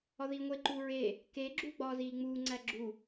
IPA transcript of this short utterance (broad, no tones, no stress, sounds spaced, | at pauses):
ɒ ð iː ŋʷ e ǃ uː ɹ e | k e ɡ͡ǁ uː ɡ͡b ɒː z iː ŋ͡m uː ŋ͡ǀ æ ɡ͡ǁ u